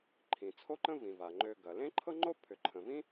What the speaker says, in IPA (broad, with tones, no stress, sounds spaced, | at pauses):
ǃʰ ĩ˩ t͡sʰ o˥ ǃ ə̃˥ v ĩ˩ v a˩ ŋ͡ǃ ø˧ ɡ ɐ˩ l ẽ˥ ǃʰ ɤ˥ ŋ͡ǃ o˥ pʰ ʏ˩ ǃʰ ə̃˩ v ĩ˥